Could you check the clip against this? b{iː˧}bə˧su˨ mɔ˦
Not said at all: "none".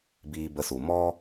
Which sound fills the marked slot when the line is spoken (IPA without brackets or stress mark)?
iː˧